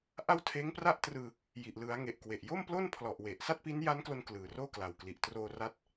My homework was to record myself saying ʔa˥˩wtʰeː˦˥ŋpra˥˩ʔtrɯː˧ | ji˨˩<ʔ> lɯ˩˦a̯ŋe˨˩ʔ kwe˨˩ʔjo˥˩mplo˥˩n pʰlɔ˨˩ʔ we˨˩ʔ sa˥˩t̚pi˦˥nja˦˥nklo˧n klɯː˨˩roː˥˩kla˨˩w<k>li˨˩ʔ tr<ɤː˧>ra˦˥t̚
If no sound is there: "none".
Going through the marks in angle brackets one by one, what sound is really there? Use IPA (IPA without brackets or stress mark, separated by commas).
ʔ, k, oː˧